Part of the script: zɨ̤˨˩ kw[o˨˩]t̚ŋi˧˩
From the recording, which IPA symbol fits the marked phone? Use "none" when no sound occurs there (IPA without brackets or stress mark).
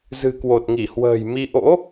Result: o˨˩